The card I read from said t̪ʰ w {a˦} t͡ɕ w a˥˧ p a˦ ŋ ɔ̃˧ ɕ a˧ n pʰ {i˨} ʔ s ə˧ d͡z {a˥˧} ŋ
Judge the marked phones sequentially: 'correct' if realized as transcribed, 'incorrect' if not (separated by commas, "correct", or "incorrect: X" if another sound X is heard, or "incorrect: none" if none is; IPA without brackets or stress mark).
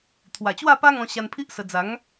incorrect: a˨˩, incorrect: i˦, incorrect: a˨˦